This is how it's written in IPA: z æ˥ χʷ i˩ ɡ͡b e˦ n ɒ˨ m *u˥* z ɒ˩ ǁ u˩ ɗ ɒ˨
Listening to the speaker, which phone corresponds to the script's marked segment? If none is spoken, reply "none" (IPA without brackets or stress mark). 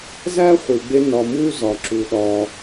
u˥